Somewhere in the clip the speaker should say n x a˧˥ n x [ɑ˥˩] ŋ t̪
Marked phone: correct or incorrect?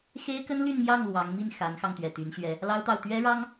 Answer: incorrect